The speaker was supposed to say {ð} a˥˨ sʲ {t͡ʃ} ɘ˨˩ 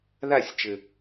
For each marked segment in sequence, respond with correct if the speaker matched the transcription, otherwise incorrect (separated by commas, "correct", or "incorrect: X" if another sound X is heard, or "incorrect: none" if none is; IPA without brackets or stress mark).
correct, correct